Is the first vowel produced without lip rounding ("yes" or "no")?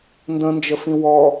yes